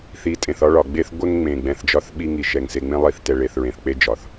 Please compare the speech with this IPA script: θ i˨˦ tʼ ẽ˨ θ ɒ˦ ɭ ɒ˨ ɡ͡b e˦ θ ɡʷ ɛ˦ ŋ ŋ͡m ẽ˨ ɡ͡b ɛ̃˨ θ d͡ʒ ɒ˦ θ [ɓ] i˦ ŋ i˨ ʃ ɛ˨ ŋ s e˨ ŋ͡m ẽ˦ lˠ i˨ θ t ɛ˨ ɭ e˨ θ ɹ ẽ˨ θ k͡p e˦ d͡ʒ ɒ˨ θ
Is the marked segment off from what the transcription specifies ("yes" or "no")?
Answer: no